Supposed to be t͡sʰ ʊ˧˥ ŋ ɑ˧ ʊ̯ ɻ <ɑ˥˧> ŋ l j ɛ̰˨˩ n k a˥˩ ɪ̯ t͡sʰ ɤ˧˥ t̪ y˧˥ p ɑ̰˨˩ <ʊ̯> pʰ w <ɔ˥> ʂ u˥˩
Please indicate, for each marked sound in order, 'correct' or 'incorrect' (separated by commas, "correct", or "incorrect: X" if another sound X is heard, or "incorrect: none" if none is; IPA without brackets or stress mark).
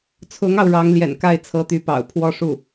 incorrect: ɑ˧˥, correct, correct